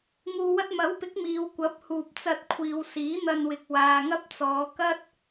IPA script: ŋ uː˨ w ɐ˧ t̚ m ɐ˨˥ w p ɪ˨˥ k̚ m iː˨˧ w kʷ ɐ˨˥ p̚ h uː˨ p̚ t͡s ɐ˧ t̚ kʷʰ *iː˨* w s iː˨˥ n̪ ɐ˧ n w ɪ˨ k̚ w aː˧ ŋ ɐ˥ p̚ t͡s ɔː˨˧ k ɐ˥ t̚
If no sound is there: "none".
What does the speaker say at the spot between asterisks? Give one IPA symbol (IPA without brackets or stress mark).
iː˨